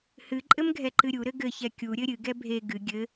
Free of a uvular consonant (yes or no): yes